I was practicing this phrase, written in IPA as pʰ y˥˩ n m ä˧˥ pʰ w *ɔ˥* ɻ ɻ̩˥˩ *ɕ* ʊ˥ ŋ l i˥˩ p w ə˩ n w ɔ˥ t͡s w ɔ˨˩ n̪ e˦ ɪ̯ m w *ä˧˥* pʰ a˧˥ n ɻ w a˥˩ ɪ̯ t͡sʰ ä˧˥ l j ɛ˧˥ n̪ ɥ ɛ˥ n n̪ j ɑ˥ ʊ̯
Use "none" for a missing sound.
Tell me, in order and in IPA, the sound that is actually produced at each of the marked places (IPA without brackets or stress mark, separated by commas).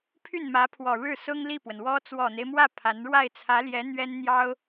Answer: ɔ˨˩, s, ä˥˩